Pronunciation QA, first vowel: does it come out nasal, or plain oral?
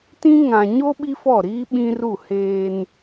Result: nasal